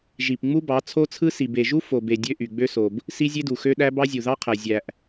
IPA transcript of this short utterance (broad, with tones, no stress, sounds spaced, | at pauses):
ʒ i˨ p ŋ͡m u˦ b ɑ˨˦ t͡sʰ o˦ t͡sʰ ɯ˦ s i˨ b e˨ ʒ u˦ f o˨ b e˨ dʲ ø˦ ʔ y˨ ɡ͡b ø˦ s o˨ b | s i˦ zʲ e˦ d u˨ x ø˦ ɗ æ˦ b ɑ˦ zʲ u˨ ð ɑ˦ qʰ æ˨ zʲ æ˨ ʔ